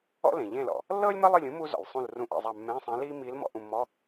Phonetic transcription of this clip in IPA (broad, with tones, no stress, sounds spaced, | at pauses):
ɔ̰˥ l ẽ˩ ʎ ẽ˦˨ l ɔ̰˩ | lː ɤː˥ lʲ m ɤ˥ lˠ ɯ˦˨ lʲ ũ˧˥ m u˥ z ɔ̰˩ lʲ sˤ ũ˦˨ l r ũ˧˥ ʔ ḛ˦˨ zˤ a˦˨ mː ẽ˧˥˧ sˤ ẽ˧˥ l iː˥ m iː˧˥ l m ɔ̰˧˥˧ ʔ ũ˦˨ mː ɔ˧˥˧